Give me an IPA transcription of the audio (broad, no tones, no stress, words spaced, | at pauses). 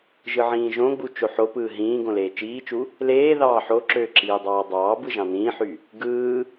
ʒɯʕĩːʒõɡ͡bu t͡ʃoħopɯː ɦĩː ɡõleːt͡ʃiːt͡ʃu | leː ðɑːħoǁøː ǁiːdˤɑːdˤɑːbɯ ʒɑ̃nĩːħy | ɡɯː